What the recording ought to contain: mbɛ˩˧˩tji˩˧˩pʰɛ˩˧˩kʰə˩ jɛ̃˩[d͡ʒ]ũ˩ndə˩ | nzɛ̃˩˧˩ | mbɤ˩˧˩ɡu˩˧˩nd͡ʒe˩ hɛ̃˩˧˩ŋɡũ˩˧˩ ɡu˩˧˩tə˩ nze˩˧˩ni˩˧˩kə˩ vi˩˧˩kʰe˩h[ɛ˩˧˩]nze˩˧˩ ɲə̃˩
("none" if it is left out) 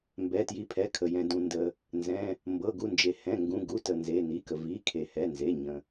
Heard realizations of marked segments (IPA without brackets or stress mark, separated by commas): d, ɛ˩˧˩